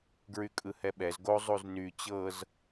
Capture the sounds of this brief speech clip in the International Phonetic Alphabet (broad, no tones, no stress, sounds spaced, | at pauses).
ɡ ɹ y kʼ ɯ h ɛ ɓ ɛ z ɡ o zˤ u z n y t͡ɕ ɤ z